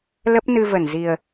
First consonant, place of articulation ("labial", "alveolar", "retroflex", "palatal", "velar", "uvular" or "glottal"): alveolar